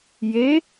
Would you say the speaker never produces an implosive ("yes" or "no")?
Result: yes